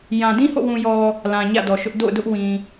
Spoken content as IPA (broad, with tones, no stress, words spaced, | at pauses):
jã˨dĩ˦ho̰˦˨wũ˨ jɔ˨ | lã˨ ɲä̰˦˨dɔ˨ʃʊ˦ʔ do̰˦˨ʊ̯dʊ˦ʔwĩ˨